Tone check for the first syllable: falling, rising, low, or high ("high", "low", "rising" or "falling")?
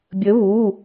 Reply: rising